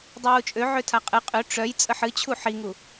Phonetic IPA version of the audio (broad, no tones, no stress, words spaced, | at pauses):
dˤiwut͡ʃʼø ʕøtʰaqʼɨ qʼø ʈ͡ʂœj t͡sʼəħɨt͡ɕʰu ħiŋu